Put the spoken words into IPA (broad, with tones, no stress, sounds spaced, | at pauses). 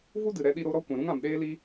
v u˦ d ɨ˨ ɾ ɛ˦ ɗ i˦ ɾ o˧ ɾ ɔ˦ kʷ ɛ̃˨ ɾ ũ˧ ŋ ã˨ m ɗ eː˧ l i˧